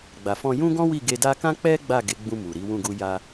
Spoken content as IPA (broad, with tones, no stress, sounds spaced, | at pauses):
ɡ͡b a˨ f ɔ̃˧ j ũ˦ ɡ ɔ̃˦ w i˦˨ ɡ e˧ d a˦ k ã˦ k͡p ɛ˦ ɡ͡b a˦˨ ɡ e˨˦ ɡ͡b ũ˧ m u˨ ɾ i˨˦ w ũ˦˨ ɡ u˧ j a˧